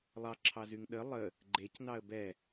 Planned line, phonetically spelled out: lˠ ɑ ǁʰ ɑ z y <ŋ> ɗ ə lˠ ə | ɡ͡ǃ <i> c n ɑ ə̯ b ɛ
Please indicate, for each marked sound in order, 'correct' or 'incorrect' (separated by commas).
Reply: correct, incorrect